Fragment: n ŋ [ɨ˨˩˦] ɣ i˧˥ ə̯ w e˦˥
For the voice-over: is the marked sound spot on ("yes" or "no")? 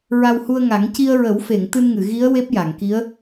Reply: no